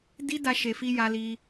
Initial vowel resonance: oral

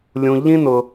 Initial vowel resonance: nasal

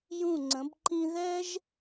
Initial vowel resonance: nasal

